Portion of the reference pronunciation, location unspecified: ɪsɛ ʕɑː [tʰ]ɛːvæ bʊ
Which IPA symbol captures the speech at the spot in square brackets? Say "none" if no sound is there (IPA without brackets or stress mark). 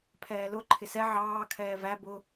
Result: kʰ